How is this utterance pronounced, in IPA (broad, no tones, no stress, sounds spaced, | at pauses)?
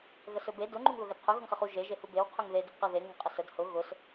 ɣ ə s ɵ b e d ʊ ŋ͡ǃ u ŋ ð ʊ ɣ ə d qʰ ɵ ɣ ʊ ŋ χ ɘ χ u ʒ e ʒ e h u b e w qʰ ɵ ŋ ð e d ʊ b q ə ð e ŋ ʊ ŋ qʼ ə s ə d h ʊ ɣ ʊ s